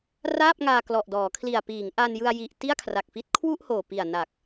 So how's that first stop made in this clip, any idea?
plain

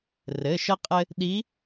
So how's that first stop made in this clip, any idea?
ejective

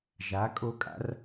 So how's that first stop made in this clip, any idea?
ejective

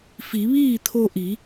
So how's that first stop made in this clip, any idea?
aspirated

